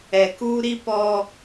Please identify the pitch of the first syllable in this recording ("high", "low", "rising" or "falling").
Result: low